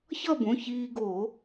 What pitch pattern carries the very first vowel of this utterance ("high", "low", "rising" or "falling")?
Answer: falling